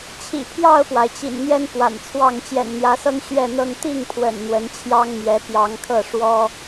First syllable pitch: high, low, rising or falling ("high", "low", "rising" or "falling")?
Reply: low